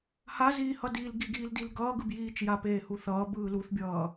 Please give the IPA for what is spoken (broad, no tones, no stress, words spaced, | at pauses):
haziːhʌ diːlɡiɡiːldil ɡʌːɡɯbjiːt͡ʃ japeːhuθʌː bɯːluθbʲʌː